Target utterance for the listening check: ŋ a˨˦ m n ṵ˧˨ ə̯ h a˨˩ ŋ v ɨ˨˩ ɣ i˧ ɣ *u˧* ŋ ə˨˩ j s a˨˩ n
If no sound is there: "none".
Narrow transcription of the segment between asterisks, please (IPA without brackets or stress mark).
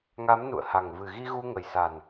u˧